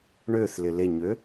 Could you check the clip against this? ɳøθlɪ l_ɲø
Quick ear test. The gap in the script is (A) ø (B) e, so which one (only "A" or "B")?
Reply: B